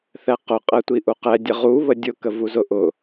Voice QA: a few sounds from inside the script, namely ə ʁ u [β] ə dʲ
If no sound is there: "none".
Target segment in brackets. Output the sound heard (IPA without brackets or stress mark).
β